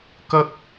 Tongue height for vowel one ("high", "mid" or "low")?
low